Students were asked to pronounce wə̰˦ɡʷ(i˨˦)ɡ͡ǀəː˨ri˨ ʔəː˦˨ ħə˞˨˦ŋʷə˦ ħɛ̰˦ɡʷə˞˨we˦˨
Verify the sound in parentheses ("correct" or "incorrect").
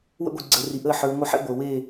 incorrect